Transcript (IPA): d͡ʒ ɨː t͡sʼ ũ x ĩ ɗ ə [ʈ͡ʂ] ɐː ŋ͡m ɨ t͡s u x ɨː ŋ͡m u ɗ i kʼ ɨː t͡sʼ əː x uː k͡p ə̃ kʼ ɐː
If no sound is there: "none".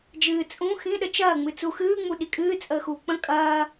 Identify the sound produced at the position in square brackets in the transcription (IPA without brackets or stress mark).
t͡ʃ